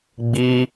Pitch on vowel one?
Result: high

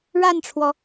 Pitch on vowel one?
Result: falling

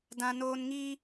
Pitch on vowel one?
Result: high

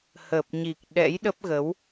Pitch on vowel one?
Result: low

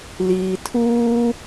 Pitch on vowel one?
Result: low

